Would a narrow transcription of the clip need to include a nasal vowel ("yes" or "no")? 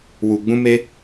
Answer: yes